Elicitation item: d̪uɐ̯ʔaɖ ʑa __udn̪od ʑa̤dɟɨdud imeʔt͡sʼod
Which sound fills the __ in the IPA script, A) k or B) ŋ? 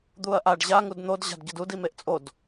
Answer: B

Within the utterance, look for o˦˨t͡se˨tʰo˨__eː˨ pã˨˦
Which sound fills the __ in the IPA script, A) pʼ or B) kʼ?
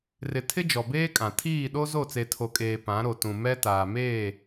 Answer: B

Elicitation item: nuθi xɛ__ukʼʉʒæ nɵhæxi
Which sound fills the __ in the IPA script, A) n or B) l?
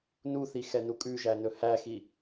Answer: A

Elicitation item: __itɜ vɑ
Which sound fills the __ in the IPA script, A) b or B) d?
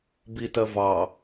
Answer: A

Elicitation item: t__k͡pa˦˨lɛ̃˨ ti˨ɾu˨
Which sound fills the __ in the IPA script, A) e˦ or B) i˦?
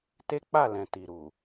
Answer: A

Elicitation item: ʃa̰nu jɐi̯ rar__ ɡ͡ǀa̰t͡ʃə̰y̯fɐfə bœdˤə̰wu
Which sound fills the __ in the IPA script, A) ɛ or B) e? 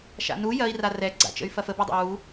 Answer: A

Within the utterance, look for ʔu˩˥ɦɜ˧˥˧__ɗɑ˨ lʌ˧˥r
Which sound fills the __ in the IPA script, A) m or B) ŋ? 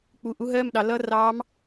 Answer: A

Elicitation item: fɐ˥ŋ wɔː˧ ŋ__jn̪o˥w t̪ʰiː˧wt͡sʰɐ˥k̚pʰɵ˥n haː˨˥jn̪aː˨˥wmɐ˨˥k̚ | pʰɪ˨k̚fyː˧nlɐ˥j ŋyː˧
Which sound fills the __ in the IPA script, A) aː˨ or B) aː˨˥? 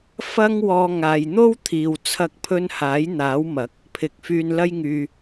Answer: A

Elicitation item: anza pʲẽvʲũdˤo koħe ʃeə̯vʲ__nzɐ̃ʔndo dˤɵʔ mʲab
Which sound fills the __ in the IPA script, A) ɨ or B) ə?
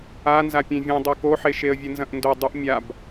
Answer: A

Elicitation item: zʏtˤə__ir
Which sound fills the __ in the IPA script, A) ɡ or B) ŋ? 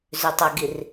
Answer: A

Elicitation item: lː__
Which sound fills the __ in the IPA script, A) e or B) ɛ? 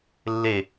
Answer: A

